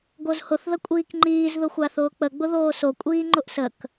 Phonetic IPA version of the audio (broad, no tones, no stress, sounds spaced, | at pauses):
ɡ o z h ʊ θ ð ə kʷʼ iː k ŋ͡ǃ iː z ð ʊ xʷ a θ ʊː k͡p ə ɡ͡b ʊ ð oː s o kʷʼ iː ŋ͡ǃ ʊ ʔ s ə k